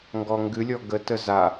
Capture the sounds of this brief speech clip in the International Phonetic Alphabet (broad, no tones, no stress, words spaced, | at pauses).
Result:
ŋɡɔŋɡɨlʲɔ ɡətə za